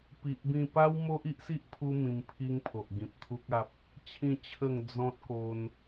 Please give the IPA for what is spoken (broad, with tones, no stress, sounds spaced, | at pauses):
p i˨ ʔ b ĩ˧ p a˦ w m o˦ ʔ i˦ ʔ s i˦ ʔ pʰ u˧ m ĩ˧ m pʰ i˦ ŋ pʰ o˨ ʔ ɡ ĩ˨ p̚ t̪ʰ u˦ k̚ a˦ p̚ | t͡ɕʰ ĩ˥˧ t͡ɕʰ ə˥˧ ŋ d͡z ɔ̃˦ t̚ k o˧ n